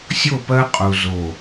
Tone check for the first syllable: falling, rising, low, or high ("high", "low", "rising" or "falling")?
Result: falling